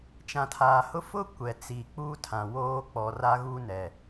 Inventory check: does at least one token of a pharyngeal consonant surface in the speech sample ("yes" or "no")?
no